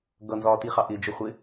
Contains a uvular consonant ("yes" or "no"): yes